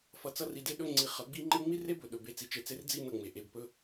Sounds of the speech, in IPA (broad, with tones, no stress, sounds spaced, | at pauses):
f ʌ˧ t͡s ʌ˦ r i˧ d e˦ ɗ ɵ˦ ŋ͡ǀ i˧ χ ʌ˨˦ ɡ͡b i˦ ŋ͡ǃ e˦ ŋ͡m i˦ r e˦ b ɵ˨ ɗ ɵ˨ b e˧ t͡s i˨ t͡ʃ e˧ t͡s e˦ r d͡z i˧ n ʌ˦˨ ŋ͡m e˨ ʔ e˧ b p ɵ˦